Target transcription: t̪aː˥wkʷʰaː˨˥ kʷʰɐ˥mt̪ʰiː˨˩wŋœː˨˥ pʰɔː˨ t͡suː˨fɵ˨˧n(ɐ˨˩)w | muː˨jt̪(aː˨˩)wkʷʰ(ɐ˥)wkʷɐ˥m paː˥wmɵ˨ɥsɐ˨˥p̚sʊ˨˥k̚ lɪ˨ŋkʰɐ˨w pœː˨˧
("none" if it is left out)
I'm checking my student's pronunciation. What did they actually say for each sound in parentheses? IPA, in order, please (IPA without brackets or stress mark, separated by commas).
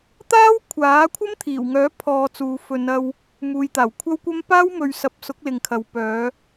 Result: ɐ˧, aː˨˩, ɐ˥